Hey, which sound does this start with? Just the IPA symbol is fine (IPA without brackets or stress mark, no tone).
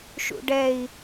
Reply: ʃ